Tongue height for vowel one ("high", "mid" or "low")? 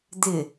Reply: high